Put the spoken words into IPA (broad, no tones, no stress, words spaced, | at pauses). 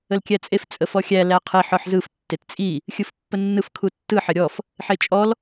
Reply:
əlkʲæt͡sʼef t͡sʼəfɔxʲæ læqʰiħ ɔħzɯf tːett͡sʼi | xʲɯfpːənːɯf kʰutːɯ ħəɾʲɔf | ħet͡ʃʼɔl